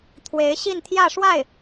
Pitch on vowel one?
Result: rising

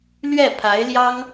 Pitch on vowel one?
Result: falling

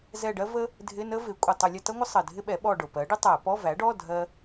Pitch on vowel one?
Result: falling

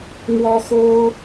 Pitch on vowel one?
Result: high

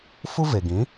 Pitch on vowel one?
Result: high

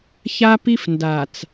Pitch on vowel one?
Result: high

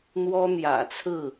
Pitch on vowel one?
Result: high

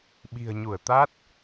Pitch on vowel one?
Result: low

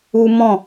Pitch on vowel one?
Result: high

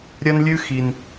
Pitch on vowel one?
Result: high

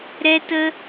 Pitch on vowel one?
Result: high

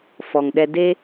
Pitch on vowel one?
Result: low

